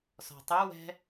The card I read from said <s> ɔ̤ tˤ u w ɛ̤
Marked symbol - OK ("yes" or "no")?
yes